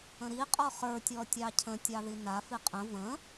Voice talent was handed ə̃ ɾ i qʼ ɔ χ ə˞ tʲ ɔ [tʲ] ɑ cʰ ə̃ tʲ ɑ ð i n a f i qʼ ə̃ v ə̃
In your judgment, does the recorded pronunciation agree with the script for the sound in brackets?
yes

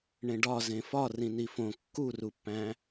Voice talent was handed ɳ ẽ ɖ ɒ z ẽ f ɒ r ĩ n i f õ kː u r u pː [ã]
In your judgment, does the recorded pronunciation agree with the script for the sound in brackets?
no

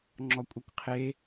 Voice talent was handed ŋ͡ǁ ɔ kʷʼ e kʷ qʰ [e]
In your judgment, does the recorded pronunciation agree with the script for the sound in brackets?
yes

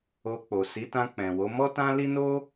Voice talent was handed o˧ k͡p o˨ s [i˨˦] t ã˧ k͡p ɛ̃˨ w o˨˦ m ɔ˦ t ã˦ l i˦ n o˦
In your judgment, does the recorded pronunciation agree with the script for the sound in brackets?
yes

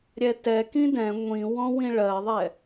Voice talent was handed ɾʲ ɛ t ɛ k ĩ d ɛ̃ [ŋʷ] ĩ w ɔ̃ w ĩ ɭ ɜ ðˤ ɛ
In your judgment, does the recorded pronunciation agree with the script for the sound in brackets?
yes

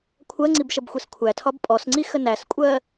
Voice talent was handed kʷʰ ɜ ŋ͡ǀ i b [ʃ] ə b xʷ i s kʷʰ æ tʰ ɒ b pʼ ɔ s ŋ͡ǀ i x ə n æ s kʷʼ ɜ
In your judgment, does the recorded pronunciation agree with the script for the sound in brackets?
yes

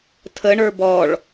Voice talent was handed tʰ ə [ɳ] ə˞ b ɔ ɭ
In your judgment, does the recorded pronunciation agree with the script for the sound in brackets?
yes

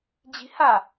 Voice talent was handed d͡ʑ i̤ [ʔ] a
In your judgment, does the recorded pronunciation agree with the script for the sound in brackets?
no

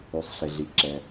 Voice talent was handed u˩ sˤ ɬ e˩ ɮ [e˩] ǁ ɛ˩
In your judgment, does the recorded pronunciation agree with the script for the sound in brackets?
no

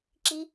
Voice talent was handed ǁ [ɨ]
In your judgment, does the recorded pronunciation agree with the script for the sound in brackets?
no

